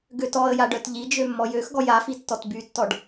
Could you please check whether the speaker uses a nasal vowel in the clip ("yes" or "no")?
no